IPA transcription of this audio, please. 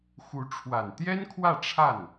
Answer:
xu˧˥ ʈ͡ʂʰwa˨˩nt̪jɛ˥n kʰwä˥˧ ʈ͡ʂʰa˥˩n

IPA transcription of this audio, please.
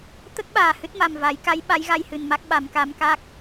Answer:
t̪ə˦˥k̚ ɓaː˨˩hɨ˦˥t̚ma˨˩mva˨˩˦j ka˧˥j ɓa˧˥jɣa˧jhɨ˨˩nma˦˥k̚ ɓa˨˩˦mka˧˥m ka˦˥k̚

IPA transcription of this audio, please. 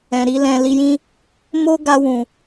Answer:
ɛ̃˨ɾi˧ lɛ̃˧ li˧jĩ˦ | mo˦ɡa˧wũ˨

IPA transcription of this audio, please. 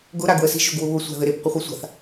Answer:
ɡʊ ɾaɡwəsi̤ ʒʊɡwʊβʊ sʷa̤ðɘɾep qʷɘχʷisʷa̤θ

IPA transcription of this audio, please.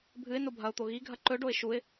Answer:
bʱɨɪ̯ nobʱɐʊ̯t̪o ɣiɡʱɐ ǃɵɖoɪ̯ ʃuɪ̯

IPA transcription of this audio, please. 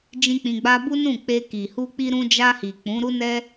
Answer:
d͡ʒĩ˦k͡pĩ˧ɡ͡ba˦ bu˦nũ˦˨k͡pe˧ ki˨hu˧ k͡pi˧ɾũ˧d͡ʒa˧hi˨ k͡pũ˨˦ɾu˦nɛ˦

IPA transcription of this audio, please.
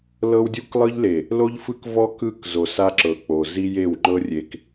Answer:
lɤ˦wdʲu˦klˠɯ˦ʎle˨ | lo˦ʎfɯ˦kvɔ˦ kɯ˦˨k zo˨sa˦ǁɤ˨ k͡po˨ zi˦je˦˨w ŋ͡ǃɤ˦rʲe˨k

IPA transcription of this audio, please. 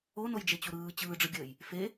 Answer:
onojd͡ʒet͡ɕu ɾɯː t͡ɕɯːɖ͡ʐɯɡʲəːj | fe

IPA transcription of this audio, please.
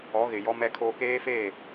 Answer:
ɔ˨˦ɣɪ˨ jɔ˦mɛ˦kʰoː˦ keː˦feː˦˨

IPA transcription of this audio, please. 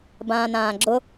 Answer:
bãːnãːɡ͡ǁʊ

